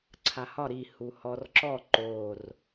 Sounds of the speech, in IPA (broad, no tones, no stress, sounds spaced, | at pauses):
ǀʰ a h ɒ ɾ i h u h ɔ r ǁ ɔ ǃ o r